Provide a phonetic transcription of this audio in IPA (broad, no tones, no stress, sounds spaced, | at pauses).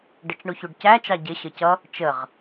ɖ ə t͡ʃ ɳ u ç u ɖ c æ t͡ʃ ɑ ɟ ɪ ɕ ə c ʌ | t͡ʃ ə ʁ